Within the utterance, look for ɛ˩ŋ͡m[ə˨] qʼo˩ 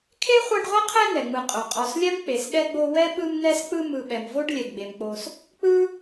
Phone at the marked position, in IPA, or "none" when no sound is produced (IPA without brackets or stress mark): ɯ˨